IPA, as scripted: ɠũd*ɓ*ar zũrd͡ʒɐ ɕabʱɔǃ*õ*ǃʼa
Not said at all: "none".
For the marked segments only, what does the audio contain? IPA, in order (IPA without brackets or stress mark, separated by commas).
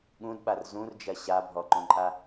ɓ, õ